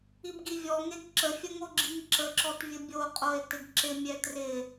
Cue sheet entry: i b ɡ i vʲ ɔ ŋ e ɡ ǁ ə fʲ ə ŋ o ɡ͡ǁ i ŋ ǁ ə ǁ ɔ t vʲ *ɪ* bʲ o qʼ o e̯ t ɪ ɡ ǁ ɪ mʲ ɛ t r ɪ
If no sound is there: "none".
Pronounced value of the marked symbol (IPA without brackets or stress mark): ə